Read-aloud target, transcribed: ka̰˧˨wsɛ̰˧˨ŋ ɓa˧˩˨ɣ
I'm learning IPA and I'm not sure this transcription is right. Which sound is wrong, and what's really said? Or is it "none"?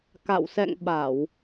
ɣ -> w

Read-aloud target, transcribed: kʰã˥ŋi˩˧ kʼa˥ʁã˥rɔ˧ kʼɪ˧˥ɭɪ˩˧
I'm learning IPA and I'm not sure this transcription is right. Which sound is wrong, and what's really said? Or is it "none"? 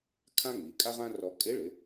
none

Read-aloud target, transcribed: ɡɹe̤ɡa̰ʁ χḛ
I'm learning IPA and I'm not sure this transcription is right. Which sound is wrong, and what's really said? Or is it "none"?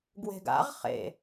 ɹ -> w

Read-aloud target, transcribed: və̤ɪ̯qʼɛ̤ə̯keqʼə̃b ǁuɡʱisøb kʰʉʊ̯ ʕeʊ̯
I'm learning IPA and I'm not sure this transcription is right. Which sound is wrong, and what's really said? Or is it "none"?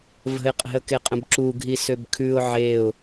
none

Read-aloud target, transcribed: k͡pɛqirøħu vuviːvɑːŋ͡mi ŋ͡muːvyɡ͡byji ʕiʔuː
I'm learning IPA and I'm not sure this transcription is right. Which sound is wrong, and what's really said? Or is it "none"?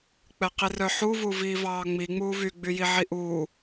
ø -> œ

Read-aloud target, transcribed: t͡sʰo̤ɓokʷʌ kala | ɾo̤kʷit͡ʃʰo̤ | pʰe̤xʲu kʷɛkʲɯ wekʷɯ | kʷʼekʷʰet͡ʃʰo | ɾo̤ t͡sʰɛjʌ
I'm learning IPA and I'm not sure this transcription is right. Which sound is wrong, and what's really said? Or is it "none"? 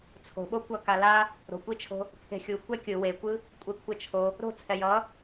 none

